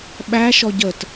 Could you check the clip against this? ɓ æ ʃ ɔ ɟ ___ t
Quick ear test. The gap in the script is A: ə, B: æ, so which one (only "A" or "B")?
A